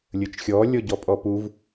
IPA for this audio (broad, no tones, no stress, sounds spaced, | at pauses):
lʲ ə t͡ʃ xʲ ɔ lʲ ɔ ɟ ɔ pʼ ɔ p u v